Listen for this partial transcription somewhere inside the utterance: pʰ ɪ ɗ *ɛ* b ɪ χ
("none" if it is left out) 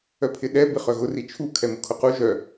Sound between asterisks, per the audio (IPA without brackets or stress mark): ɛ